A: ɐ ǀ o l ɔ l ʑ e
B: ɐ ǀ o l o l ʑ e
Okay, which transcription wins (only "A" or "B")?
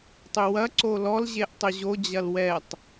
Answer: A